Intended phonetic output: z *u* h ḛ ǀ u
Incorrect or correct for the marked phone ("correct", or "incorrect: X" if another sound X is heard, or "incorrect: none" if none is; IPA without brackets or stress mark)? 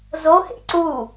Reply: incorrect: o